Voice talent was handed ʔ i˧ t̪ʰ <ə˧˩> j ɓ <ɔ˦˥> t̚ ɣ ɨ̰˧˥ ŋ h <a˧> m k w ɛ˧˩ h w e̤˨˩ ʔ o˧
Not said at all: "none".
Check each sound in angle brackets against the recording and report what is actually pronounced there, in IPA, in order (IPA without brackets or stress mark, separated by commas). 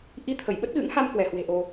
ə˧˩, ə˦˥, a˧